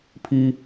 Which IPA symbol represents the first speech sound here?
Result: pʰ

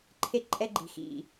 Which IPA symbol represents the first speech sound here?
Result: ǃʰ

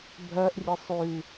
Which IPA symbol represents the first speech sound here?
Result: bʱ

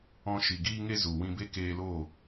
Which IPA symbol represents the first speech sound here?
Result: ɔ̃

